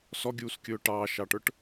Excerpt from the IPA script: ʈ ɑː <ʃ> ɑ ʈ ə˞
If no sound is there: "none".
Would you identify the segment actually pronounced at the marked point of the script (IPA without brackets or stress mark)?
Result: ʃ